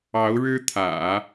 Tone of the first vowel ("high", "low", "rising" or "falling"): rising